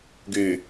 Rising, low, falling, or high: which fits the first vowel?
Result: low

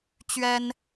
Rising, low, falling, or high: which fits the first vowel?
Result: high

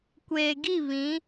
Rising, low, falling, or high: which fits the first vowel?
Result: low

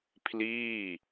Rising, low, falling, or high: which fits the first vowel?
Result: falling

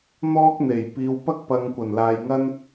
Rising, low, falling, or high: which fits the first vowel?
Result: high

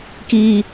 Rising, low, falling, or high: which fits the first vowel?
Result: low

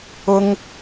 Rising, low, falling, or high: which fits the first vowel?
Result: high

